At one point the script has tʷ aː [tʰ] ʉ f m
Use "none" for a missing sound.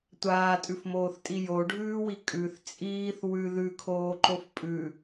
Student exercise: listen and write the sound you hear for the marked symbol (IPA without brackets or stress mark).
tʼ